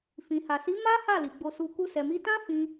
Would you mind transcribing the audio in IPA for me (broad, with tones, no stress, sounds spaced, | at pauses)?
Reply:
f ĩ˨ h a˨ s i˨˦ m a˦ h a˦˨ l i˨ ɡ͡b o˧ s u˧ k u˦ s ɛ˧ m i˦ t ã˦ f ĩ˧